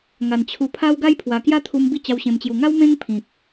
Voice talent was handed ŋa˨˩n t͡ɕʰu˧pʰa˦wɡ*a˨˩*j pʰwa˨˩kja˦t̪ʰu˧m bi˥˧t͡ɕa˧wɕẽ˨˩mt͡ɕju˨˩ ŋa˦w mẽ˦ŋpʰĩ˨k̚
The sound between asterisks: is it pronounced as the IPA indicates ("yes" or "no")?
no